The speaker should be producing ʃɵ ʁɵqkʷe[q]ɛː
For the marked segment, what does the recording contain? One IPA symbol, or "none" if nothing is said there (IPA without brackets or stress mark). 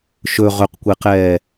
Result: q